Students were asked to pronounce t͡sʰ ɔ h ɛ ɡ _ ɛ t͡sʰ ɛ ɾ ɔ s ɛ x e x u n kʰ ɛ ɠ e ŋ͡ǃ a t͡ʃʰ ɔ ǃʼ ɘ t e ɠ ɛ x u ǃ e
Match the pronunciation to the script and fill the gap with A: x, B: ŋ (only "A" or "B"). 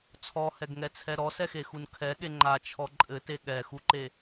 B